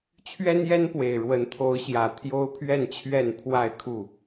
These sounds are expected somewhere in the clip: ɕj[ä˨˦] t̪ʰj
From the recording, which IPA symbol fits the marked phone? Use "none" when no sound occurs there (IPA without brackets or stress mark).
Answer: ä˨˩